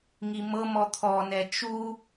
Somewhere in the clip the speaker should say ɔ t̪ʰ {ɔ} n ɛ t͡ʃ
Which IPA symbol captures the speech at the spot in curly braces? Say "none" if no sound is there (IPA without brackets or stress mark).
ɔ